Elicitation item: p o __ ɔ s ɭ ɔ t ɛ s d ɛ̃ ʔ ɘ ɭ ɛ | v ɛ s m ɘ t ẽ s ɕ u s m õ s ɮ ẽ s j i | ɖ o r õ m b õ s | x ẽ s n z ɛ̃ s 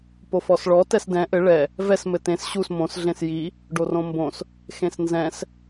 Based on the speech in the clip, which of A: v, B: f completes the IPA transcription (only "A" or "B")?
B